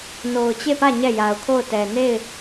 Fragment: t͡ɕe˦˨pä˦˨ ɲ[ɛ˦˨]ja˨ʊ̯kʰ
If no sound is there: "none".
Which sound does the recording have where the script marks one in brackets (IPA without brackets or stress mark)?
ɛ˦˨